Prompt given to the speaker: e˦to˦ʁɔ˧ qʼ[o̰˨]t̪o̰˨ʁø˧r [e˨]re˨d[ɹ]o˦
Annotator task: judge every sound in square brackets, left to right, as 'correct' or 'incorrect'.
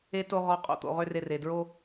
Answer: correct, incorrect: e˧, correct

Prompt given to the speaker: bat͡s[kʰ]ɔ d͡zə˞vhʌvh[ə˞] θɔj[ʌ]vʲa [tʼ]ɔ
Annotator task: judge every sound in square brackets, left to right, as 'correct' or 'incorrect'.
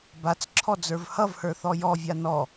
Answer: incorrect: ǁʰ, correct, incorrect: ɔ, incorrect: n

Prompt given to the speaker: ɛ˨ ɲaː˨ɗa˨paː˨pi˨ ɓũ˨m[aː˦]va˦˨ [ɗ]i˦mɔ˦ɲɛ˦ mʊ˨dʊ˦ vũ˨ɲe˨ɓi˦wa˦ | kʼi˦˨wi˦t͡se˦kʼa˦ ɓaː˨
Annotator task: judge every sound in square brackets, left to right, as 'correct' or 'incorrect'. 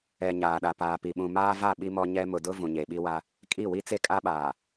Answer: correct, incorrect: ɓ

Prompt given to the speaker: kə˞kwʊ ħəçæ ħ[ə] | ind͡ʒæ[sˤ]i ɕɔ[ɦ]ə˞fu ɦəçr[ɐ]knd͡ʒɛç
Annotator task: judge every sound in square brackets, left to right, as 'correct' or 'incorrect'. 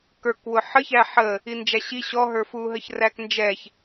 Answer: correct, incorrect: ɕ, correct, incorrect: æ

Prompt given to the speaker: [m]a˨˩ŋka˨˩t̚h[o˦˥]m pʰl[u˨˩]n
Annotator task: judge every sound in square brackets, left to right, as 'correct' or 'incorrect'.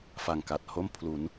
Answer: incorrect: f, incorrect: o˥˩, incorrect: u˩˦

